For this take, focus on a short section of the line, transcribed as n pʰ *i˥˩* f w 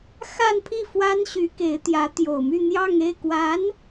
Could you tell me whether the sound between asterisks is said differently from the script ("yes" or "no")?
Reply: no